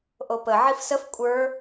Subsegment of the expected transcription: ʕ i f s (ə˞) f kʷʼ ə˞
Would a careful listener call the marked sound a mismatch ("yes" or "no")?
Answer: yes